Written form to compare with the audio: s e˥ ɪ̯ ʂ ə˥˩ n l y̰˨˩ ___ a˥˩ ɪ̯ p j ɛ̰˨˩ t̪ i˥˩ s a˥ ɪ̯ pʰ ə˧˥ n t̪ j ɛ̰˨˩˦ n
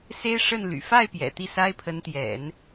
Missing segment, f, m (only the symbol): f